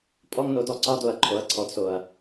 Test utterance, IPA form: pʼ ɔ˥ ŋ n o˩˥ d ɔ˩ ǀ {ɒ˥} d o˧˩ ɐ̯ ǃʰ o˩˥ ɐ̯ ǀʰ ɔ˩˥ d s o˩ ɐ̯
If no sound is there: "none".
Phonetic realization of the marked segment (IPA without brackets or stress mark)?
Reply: ɒ˥